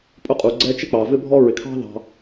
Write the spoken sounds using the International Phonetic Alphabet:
pʼ ʊ˥ qʼ u˩ ɡ͡ǀ ɛ˦ t͡ʃ ɪ˥ k͡p ɑ˩ v ɪ˥ bʱ ɔ˥ ɹ ɪ˩ kʰ ɑ̤˥ ð ɑ̤˨

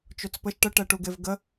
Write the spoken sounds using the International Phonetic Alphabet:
t͡ʃ o t͡s p ə ʃ ʈ ə ʈ ɛ ʈ u ɡ e v ɡ ə

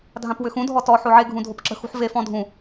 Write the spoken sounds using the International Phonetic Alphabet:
dʱ ã p w ʏ x ũ dʱ ɔ t ɔ ħ o ʕ e ɡʱ ũ dʱ o p ǁ ə̤ x ṳ ħ v e f ɔ̃ dʱ ũ

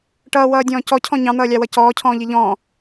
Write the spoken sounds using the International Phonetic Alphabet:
ʈ ʌː w ʌː dʲ ɔ̃ː c ɔ cʰ ɔ̃ ɲ ɑ̃ n̪ ʌː lʲ ɑ w ʌ c ɔː cʰ ɔ̃ː ʎ i ʎ ɔ̃ː

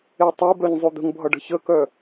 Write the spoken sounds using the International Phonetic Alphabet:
e tˤ e b œ ɲ zˤ o d̪ ə̤ ŋ bʱ ʌ ɖ ə̤ ç ə k œ

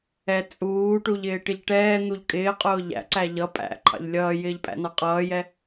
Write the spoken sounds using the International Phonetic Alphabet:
ɛ t͡sʼ uː ʈ u ʎ ɪː ʈ ɪ ʎ ʈ ɛː n̪ u ʎ kʼ ɪː qʼ ʊː ʎ æ̰ ǀ æ ʎ ʌ pʼ æ̰ ǃʰ ɑ̰ ʎ lʲ ʌː j ɪː ʎ pʼ æ̰ n ɑ qʼ ʌː j ɛ

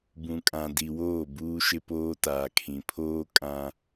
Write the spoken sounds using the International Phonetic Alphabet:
b ũ˨ kʼ ã˨ d i˨ w oː˦˨ b uː˦ ʃ ɪ˦ p oː˦ t aː˨ kʰ ĩ˨ pʰ oː˦ kʼ ã˦

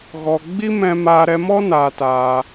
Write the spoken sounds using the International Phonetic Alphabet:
ɣ ɔ˧ ɡ͡b i˦ m ɛ̃˧ m aː˧ ɾ ɛ˧ m ɔ˦ n aː˧ t aː˧

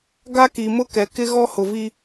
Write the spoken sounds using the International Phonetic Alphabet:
ɡ a˦ k i˨ m ʊ˦ k ɛ˨ k ɪ˦ ɣ ɔ˦ h ʊ˨ v i˦

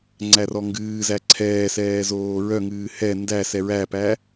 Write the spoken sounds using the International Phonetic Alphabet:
ŋ͡ǀ æ r ɔ ŋ ɡ ɨː z æ ǀʰ ɛː s ɛː z oː ɹ œ ŋ ɨː h ɛ n d æ s ɛ ɹ æ p æ

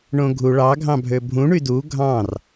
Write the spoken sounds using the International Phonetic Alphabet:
ɳ õ ɡʱ u ɭ ɑ ɡʱ ɑ̃ bʱ ø bʱ ũ ɳ y d u ɡʱ ɑ̃ r

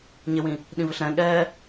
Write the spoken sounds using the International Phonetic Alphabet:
ɲ ɪ w ĩ | ɗ ĩ v ɪ ɬ ɾ ɛ̃ ɠ ɛː

